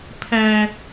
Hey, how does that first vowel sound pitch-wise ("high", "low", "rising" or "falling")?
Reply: high